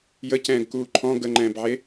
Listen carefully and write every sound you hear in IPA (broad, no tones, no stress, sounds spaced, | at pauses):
j ə c ɛ̃ː ɡ k uː ǃʰ ɔ̃ ɡ ə ŋ͡ǃ ɛ̃ː b ʕ e